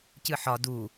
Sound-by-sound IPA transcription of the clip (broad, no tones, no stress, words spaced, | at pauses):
cɨħɒ du